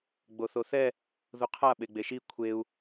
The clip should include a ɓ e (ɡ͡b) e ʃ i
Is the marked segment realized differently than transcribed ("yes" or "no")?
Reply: no